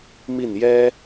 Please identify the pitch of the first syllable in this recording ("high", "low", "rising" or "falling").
falling